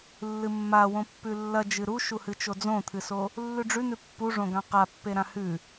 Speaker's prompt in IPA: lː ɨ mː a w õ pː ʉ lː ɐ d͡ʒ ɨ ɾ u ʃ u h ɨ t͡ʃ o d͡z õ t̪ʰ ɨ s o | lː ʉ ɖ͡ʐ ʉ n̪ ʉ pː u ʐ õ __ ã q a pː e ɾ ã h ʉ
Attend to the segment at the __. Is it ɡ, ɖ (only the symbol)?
ɡ